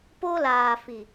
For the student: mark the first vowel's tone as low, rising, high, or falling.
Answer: high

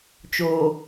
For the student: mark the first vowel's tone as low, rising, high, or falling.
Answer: low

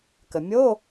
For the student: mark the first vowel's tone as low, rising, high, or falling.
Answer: low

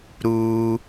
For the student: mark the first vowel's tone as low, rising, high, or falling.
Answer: high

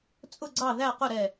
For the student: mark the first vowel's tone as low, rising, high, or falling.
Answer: falling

